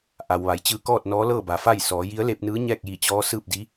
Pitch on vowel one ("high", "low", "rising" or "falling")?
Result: low